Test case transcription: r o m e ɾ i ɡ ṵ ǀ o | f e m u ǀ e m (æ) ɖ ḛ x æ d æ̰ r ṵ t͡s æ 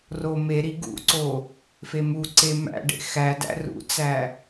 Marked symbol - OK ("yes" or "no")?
no